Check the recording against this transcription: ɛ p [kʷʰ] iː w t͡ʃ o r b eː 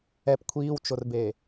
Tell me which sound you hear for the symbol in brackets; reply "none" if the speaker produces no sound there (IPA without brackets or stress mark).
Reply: kʷʰ